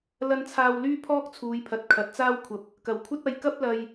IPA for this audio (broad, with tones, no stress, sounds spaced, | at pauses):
l ɐ˧ n t͡sʰ aː˧ w l yː˥ pʰ ɔː˥ k̚ t͡sʰ uː˨˧ j pʰ ɐ˨˥ t̚ kʰ ɐ˨˥ t̚ t͡s aː˥ w kʷʰ ɐ˧ p̚ | k ɐ˨˩ w kʷʰ ɐ˥ t̚ ɐ˧ j k ɐ˥ p̚ l ɐ˧ j